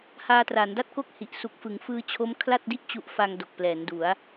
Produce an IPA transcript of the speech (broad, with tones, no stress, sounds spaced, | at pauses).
h aː˧ t r a˩˦ n d a˥˩ t̚ k o˥˩ k̚ h i˨˩ ʔ s u˨˩ k̚ f ɯ˩˦ ŋ f ɯː˧ t͡ɕʰ o˦˥ m kʰ l a˥˩ t̚ d i˥˩ ʔ t͡ɕ u˦˥ ʔ f a˧ ŋ d o˨˩ k̚ p l ɛː˩˦ n d u˩˦ a̯